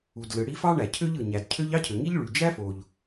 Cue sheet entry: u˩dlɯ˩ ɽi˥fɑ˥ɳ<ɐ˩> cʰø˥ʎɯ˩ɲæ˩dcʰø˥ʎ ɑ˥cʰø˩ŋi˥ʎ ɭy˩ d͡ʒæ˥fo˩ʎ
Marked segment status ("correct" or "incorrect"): incorrect